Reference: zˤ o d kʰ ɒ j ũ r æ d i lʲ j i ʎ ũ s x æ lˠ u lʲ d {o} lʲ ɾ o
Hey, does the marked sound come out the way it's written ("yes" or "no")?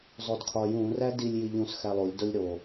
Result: yes